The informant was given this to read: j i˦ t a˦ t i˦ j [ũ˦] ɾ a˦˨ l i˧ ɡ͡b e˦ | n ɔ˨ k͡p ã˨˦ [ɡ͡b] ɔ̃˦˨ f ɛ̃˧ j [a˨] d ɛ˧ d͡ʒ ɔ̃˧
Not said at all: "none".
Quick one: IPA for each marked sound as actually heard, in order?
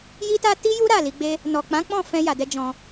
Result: u˦, k͡p, a˨

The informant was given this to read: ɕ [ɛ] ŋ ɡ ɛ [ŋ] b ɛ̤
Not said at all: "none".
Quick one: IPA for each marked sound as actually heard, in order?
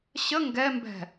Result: ə, m

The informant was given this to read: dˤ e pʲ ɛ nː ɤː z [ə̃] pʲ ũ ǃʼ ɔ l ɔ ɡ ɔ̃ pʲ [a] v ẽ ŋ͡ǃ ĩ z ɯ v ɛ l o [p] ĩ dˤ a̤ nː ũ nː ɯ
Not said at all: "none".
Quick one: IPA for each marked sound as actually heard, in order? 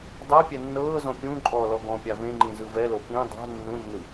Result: ɔ̃, a, p

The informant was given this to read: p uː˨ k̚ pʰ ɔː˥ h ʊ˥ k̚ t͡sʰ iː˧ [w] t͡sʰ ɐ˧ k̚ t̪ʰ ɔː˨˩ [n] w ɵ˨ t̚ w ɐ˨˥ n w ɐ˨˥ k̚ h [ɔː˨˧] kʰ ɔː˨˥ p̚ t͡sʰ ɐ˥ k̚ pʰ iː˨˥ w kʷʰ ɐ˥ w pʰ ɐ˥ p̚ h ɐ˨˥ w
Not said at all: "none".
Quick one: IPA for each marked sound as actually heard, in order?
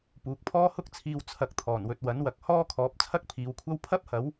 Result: w, n, ɔː˥

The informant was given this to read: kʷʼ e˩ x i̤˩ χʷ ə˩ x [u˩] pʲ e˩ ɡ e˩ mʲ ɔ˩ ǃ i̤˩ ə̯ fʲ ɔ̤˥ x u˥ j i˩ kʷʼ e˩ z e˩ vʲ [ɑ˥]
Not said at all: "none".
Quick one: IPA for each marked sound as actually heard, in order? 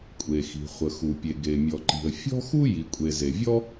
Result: u˩, ɔ˥

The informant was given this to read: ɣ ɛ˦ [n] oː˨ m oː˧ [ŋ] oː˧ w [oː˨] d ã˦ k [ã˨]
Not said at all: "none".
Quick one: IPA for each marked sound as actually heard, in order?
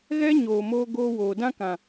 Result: ɲ, ɡ, oː˨, ã˨

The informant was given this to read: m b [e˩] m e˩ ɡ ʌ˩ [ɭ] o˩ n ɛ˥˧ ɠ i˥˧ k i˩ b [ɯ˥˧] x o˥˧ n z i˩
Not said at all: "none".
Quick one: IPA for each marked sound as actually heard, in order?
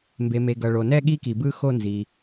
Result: e˩, ɭ, ɯ˥˧

